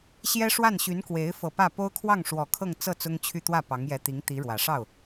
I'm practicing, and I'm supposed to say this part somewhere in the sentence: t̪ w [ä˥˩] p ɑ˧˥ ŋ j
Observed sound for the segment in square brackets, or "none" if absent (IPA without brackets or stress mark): ä˥˩